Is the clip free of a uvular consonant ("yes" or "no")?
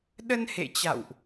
yes